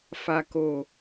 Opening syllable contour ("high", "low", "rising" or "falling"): low